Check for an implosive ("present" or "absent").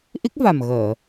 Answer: absent